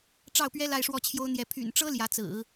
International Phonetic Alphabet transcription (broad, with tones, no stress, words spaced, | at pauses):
ʈ͡ʂɑ˥˩ʊ̯pɥɛ˥ la˥˧ɪ̯ʂwɔ˥˩t͡ɕʰjo˥ʊ̯n̪jɛ˧˥ pʰy̰˨˩nʈ͡ʂɤ˥ ljä˧˥t͡sɹ̩˨˩˦